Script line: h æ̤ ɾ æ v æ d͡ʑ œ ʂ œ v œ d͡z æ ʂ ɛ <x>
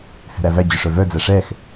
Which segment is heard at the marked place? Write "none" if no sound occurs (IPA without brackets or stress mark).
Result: x